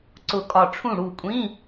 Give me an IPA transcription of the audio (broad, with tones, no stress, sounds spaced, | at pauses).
ǀ ʊ˧˩ kʼ ɒ˧˩ ʈ͡ʂʰ ũ˥˩ ɽ u˥˩ kʷʼ ĩ˧˥˧